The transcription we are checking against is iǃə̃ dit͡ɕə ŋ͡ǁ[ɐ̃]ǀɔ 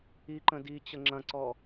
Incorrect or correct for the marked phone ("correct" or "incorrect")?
correct